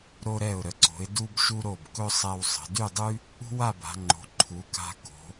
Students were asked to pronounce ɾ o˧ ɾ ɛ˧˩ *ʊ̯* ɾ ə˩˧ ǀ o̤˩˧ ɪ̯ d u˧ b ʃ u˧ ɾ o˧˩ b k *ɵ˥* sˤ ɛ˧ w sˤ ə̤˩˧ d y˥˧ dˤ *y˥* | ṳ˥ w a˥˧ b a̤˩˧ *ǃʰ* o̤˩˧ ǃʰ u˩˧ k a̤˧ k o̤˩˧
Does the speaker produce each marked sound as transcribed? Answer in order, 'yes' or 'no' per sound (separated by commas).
yes, yes, yes, no